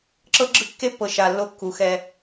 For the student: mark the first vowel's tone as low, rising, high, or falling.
high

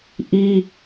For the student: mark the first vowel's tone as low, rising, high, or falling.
high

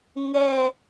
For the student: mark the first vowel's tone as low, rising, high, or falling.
low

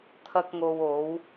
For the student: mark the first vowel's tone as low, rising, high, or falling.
high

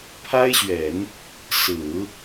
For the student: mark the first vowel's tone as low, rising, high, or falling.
high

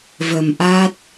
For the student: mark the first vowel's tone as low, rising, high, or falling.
low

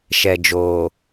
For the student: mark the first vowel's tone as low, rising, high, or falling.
low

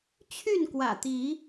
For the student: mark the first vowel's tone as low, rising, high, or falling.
falling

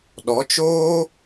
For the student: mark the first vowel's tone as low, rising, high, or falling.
rising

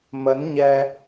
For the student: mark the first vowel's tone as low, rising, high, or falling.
rising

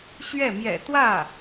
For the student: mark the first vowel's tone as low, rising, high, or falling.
falling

